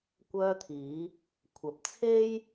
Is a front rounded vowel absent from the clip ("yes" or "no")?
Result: no